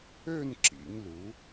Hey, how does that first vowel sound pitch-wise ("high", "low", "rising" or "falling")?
falling